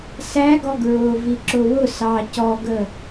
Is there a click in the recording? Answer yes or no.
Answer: yes